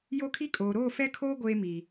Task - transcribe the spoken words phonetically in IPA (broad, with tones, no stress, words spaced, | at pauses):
jo˦kʰi˦kʼoː˨ ɾoː˦˨fɛ˦kʰoː˦ ɡʷeː˦mi˨